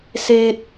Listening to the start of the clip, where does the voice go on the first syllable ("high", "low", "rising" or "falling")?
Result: high